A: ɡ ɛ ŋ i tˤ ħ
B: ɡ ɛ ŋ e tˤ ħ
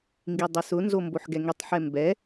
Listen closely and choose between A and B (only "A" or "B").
A